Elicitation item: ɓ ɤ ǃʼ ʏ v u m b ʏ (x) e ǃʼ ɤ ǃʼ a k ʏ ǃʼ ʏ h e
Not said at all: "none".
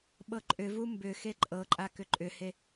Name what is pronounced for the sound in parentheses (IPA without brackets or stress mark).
x